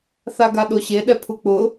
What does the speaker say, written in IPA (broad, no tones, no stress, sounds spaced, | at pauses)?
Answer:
θ a ɡ a ɗ o ɕ e ɗ ɛ pʰ u k͡p ʊ